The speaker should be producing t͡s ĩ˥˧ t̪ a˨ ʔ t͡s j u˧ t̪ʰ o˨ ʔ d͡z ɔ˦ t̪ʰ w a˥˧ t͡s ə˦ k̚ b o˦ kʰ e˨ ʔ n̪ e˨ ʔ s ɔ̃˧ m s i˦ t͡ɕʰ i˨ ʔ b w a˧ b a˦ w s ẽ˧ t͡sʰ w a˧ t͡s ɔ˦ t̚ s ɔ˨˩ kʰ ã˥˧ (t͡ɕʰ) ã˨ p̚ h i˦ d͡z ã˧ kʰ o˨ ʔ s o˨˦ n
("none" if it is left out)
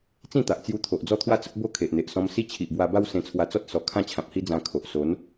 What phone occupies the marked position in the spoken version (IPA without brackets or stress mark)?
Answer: t͡ɕʰ